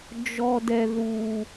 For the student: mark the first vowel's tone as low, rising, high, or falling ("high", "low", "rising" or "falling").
low